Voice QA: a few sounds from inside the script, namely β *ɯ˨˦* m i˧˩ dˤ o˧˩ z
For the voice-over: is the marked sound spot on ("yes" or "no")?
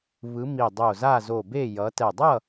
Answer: yes